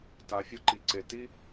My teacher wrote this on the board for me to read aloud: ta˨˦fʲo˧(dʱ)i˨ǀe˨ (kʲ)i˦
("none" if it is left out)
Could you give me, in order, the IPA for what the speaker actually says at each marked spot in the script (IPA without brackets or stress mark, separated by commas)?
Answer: ǃ, t